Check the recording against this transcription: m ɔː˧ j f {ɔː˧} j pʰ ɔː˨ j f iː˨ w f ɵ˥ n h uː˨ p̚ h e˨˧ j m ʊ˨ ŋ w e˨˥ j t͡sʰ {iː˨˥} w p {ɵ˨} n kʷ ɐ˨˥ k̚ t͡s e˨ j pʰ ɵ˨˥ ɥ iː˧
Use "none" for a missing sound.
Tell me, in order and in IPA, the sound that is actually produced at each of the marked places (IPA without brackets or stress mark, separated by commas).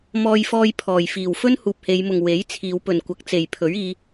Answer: ɔː˧, iː˨˧, ɵ˨